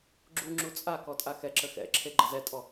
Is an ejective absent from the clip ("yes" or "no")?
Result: no